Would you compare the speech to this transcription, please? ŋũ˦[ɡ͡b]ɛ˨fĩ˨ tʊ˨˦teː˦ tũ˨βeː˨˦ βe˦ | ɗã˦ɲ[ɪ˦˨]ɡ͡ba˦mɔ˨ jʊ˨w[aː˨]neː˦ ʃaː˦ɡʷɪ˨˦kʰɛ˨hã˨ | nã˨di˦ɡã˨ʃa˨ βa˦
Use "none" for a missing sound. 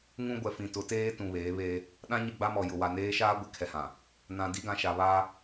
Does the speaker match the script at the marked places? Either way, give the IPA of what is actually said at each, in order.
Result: ɡʷ, ɪ˦˨, a˨

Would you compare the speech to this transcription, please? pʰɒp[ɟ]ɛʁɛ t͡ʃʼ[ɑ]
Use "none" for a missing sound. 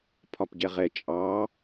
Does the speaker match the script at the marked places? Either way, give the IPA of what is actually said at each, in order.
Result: ɟ, ɑ

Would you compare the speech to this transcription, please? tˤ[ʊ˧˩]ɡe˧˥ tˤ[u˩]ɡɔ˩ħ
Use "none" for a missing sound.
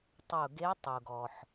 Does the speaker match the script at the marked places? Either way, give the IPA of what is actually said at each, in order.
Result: ʊ˧˩, u˩

